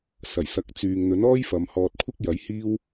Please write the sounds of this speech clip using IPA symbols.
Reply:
s ɐ˨˩ j s ɐ˧ k̚ t͡s yː˨ ŋ n̪ ɵ˨˥ n ɔː˥ j f ɐ˨˧ m h ɔː˧ t̚ kʷʰ ɪ˥ k̚ j ɐ˨˥ j h iː˥ w

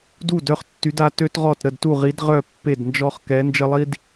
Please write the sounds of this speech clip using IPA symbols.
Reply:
d u˥˨ d œ˥ χ tː y˧˥ d a˧˥ t ø˥ t ʁ ɔ˥˨ t ɾ ə˥˨ d t u˥˨ ʁ i˧˥ d ʁ œ˥˨ pː e˥˨ d n d͡ʒ ɔ˥ χ k ɛ˧˥ n d͡ʒ ə˥ lˠ i˥ d

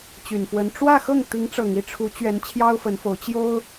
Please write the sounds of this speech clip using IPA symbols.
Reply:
t͡ɕ y˨˩ n f w ə˧˥ n ʈ͡ʂ w ä˥˧ x ɤ˥˩ ŋ t̪ i˧˥ ŋ ʈ͡ʂ ɤ˨˩ ŋ i˥˩ ʈ͡ʂʰ u˧˥ t͡ɕ ɥ ɛ˧˥ n t͡ɕʰ j ɑ˥ ʊ̯ f ə˧˥ n f o˧˥ ʊ̯ t͡ɕ j o˥ ʊ̯

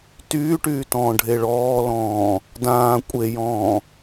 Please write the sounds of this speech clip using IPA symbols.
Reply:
t yː ʈ yː t ɔ̃ː ɖʱ e ɭ ɔː l ɔ̃ː | d ãː kʷʼ e j ɔ̃ː

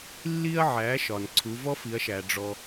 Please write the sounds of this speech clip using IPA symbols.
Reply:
lː i˧ ɐ̯ ʕ æ˩˧ ʃ ɒ˩ n ǀʰ u˩˧ v ɔ˥ f i˩˧ ɐ̯ ʃ æ˩ ɖ͡ʐ ɔ˩

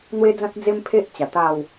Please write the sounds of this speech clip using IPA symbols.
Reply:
n̪ w e˦ d͡z ã˦ t̚ d͡z e˦ m pʰ e˦ ʔ t͡ɕ a˨˩ t̪ a˥˧ w

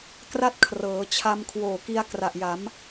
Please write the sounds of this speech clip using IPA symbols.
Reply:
k r a˥˩ t̚ kʰ r ɤː˩˦ t͡ɕʰ a˧ m kʰ w oː˨˩ k i˧ a̯ k r a˨˩ ʔ j a˩˦ m

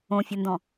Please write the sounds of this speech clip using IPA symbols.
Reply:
õ fʲ ɤ n d ɔ̃

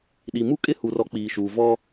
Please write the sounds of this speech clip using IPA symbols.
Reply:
ɗ i˨ m u˦ kʼ ɪ˦ h u˨ r ɔ˦ k͡p iː˨ ʃ uː˨ v ɔ˦

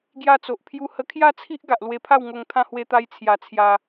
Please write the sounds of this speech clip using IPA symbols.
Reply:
ɡ j a˧ t͡s o˨ ʔ pʰ j u˧ h ə˧ kʰ j a˥˧ t͡sʰ i˦ ʔ ɡ a˨ ʔ l w e˧ pʰ a˥˧ w ŋ o˧ ŋ t̪ʰ ã˧ h w e˧ t̪ a˧ j t͡sʰ j a˧ t͡sʰ j a˧

